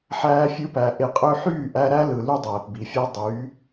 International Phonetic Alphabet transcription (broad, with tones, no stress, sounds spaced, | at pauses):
ħ æː˧ fʲ ɯ˧ p æ˨ ʔ e˨ qʼ ø˧ ħ yː˦˨ ʔ æ˧ ɾ æ˦ l ɯ˨ l y˦ dˤ æː˨ p b i˨ fʲ æ˦ dˤ yː˨˦